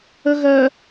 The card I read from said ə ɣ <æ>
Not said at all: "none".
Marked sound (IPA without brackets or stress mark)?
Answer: ɜ